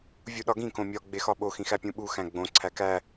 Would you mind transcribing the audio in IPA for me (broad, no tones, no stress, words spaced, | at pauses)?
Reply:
vʲuɗɒɡĩ kõmʲɒ ɡ͡bexɒɓo xĩxæpʲũɓu xæ̃ɡ͡bõ ǀʰækæ